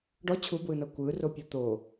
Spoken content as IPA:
ɖ ɔ t͡ɕʰ u b w ɯ n ɤ kʷ ɯ r o pʲ ɤ t̪ o

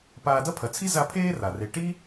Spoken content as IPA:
p aː˨ d ɐ˦ pʰ ɐ˩ t͡sʰ i˦ z a˦ pʰ eː˥ r a˩ r e˨ ʈ i˥

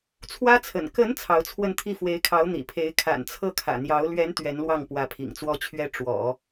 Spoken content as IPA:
t͡sʰ w ä˥ t͡sʰ ə̰˨˩ n k ə˧˥ n t͡sʰ ɑ˧˥ ʊ̯ t͡sʰ w ə˥˧ n t̪ʰ i˥˩ f w e˧˥ ɪ̯ kʰ ɑ˧˥ ʊ̯ n̪ ḭ˨˩ pʰ e˧˥ ɪ̯ kʰ a̰˨˩ n t͡sʰ ɤ˥˩ kʰ ä̰˨˩ n̪ j ɑ˧˥ ʊ̯ l ɥ ɛ˧˥ n t̪ ɥ ɛ˧˥ n l w ɑ˥˩ ŋ p w ä˧˥ pʰ ḭ˨˩ ŋ t͡s w ɔ˥ t͡ɕʰ ɥ ɛ˥ ʈ͡ʂ w ɔ̰˨˩˦

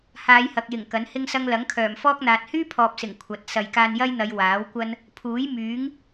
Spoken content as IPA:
h aː˨˧ j h ɐ˨ k̚ j ɪ˨˩ ŋ k ɐ˨˥ n h ɪ˥ ŋ s ɐ˥ ŋ l ɐ˨˥ ŋ kʰ œː˨˩ m f ɔː˥ k̚ n̪ aː˨ t̚ h yː˥ pʰ ɔː˨ p̚ s ɪ˨˩ ŋ kʷʰ ɐ˨˥ t̚ s ɐ˨ j k aː˧ n j ɐ˥ j n̪ ɐ˨˧ j w aː˨˥ w kʷ ɐ˥ n | pʰ uː˨˥ j m yː˨˥ ŋ

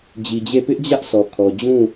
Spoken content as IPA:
d͡ʑ i˨ d͡ʑ e˦˨ p ɪ˦ ʔ d͡ʑ ä˦ ʔ sʰ ɔ˨ kʰ ɔ˨ d͡ʑ ũ˦˨

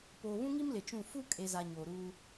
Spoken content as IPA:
p oː˨ β ũ˦ ŋ i˦ m l ɪ˨ t͡ʃ ũ˦˨ f u˦ kʼ e˨ z a˨ ɲ oː˨ ɾ uː˦

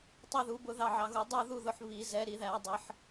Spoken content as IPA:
tˤ i˦˨ ð u˨˦ b ʊ˦˨ ð ɑ˦˨ ʕ ɑ˨˦ ɣ u˨˦ dˤ u˦˨ ð u˦˨ ð ʊ˨˦ ħ β i˨˩˦ z ɛ˨˦ ɾ i˨˩˦ ð æ˨˩˦ dˤ ɪ˨˦ ħ

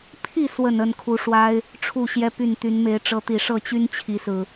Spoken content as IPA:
pʰ i˥˨ s w ə˥˨ n ə˥˨ n kʰ u˨˦ ʂ w a˦ ɪ̯ | ʈ͡ʂʰ u˥˨ ɕ j ɛ˦ p y˥˨ n t̪ y˨˦ n m e˨˦ ɪ̯ ʈ͡ʂ ɤ˨˦ t̪ i˨˩ ʂ ɤ˥˨ t͡ɕ y˦ n t͡ɕʰ i˨˦ s ɹ̩˨˩

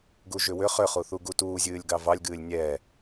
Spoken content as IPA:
ɡ u ʒ ʏ w ʏ χ ʏ χ u θ u ɡ u t uː zʲ ɨː lʲ ɡ ɑ v ɑ lʲ ɡ ɨː lʲ nʲ ɛ

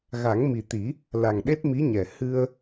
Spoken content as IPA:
ɣ a˨˩˦ ŋ m i˨˩ t̪ i˨˩˦ | l a˨˩ ŋ ɗ e˦˥ t̚ m i˧˥ ɲ ɛ˨˩ h ɨ˧ ə̯

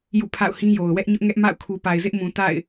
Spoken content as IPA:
j ṵ˦˨ pʰ a̰˦˨ ʊ̯ h ĩ˦ j o˨ ʊ̯ w ɛ˦ ʔ ɲ ʊ˦ ʔ ŋ ɛ˦ ʔ m a̰˦˨ ʊ̯ kʰ u˨ p a˨ ɪ̯ z ɪ˦ ʔ m ũ˨ t a̰˦˨ ɪ̯

